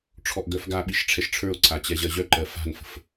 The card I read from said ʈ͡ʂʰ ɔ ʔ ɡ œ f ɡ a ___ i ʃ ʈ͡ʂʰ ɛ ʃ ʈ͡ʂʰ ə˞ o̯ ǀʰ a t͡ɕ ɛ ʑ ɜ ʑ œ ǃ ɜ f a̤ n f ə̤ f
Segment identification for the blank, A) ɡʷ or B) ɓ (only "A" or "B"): B